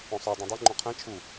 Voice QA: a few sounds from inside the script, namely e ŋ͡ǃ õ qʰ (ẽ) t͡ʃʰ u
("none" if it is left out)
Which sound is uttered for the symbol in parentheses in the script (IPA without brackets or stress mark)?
ɛ̃